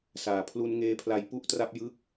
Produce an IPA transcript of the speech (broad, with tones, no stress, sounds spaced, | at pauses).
s aː˨˩ pʰ l u˦˥ n ŋ eː˦˥ pʰ l a˦˥ j p u˥˩ ʔ t r a˥˩ p̚ j ɯ˥˩ k̚